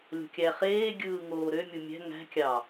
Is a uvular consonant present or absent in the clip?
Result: present